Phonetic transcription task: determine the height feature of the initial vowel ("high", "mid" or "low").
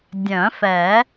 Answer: mid